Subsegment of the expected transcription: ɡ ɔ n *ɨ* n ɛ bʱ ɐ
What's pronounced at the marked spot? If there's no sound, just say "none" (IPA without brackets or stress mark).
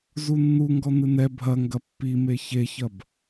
ɨ